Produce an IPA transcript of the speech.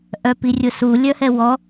ʔœpirʲʊsu lʲœhɛwɔ

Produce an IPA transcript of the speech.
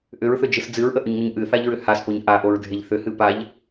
ʔʏɹθʏd͡ʒɨs d͡zɨɹʔəʔʏɲŋʏɲ ʔɨθaʎɹʏ haspoɲ ʔaʔoɹdʱeʎ θʏhɨ paʎ

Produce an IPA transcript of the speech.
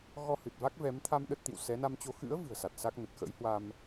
ɣɔ˧hɨ˨˩t̚va˦˥k̚vɛ˨˦m t̪ʰa˧m ɗə˦˥t̚t̪ḭ˧˨w sɛ˨˦na˧mt͡ɕo˧ xɨ̰˧˥ə̯ vɨ̤˨˩ə̯sa˨˩t̚sa˦˥k̚ nə˨˩t̚ xə̰˧˥jhwa˧m

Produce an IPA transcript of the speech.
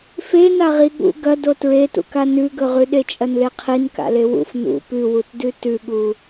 fe naʁiɠṵ ɡɐdo tɹetṵka nʉɡɵʁʉ ɗet͡ʃʼɐnleqʰin ka̰lewṵf nṵ pʉwutdʉ tʉɠu

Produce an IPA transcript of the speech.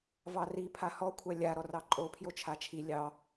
vɑri pʰahɔkʷʰa lʲa ɾɔrɑǃʼo pʰjot͡ʃʰat͡ʃʰi lʲɑ

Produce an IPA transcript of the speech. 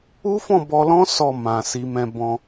u˦fɔ̃˦˨bɔ˧lɔ̃˦ sɔ˦˨mã˨ si˧mɛ̃˧ bɔ̃˧

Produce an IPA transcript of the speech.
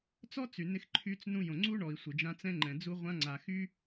t͡sɔ˦ t͡sy˨ nɪ˦xǃʰy˦t͡s nũ˦jõ˨ ŋ͡ǀu˦ɳɔ˨i̯ sʷɪ˨d͡ʒã˦t͡sɛ̃˦ŋ͡ǃɛ̃˨ d͡zu˦ʁʷã˦ ŋ͡ǀa˨xy˦

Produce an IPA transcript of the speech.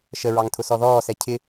ʃəɹɑŋ tʰʊsɔðɔːsɛ cʰɪ

